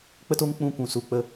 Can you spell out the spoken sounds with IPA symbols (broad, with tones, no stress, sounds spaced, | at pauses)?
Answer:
k͡p ə˦ t o˦ ŋ k͡p ũ˦˨ kʷ ũ˨ s u˧ k͡p ə˦